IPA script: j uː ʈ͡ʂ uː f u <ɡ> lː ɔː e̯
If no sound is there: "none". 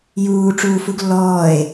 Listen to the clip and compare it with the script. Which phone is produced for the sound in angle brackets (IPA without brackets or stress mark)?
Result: ɡ